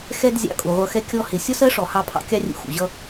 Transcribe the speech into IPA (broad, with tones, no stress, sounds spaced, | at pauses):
x ɛ˧ d zʲ ɑ̰˧ kʼ u˨ ʁʷ ʌ˧ x ɛ˦ kʲ ɔ˧ h ɪ˨ sʲ ɒ˦ s ɜ˦ ʂ ɔ˨ h ɑ˧ pʰ ɑ̰˧ kʲ ɑ˦ rʲ ṵ˧ x ṵ˨ ʑ ʌ˦